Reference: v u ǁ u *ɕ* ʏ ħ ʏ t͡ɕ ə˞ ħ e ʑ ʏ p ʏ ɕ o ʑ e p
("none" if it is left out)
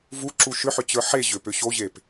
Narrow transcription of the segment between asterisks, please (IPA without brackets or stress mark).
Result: ʃ